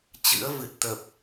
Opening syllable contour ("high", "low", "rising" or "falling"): rising